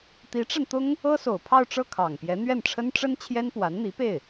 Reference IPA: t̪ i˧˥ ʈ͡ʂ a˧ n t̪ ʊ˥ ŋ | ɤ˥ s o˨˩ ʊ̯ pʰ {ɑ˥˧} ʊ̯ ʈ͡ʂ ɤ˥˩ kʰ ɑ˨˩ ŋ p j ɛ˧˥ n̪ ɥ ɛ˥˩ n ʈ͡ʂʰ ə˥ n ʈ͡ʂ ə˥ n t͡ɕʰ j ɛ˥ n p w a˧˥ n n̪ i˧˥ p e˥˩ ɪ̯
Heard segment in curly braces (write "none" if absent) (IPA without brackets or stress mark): ɑ˥˧